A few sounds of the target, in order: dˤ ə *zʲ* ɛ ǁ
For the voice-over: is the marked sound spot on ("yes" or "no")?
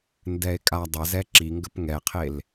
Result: no